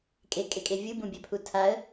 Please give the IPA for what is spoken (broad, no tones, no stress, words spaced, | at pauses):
kʼekʼekʼe vʲɯbũbʲœpʰu tʰaə̯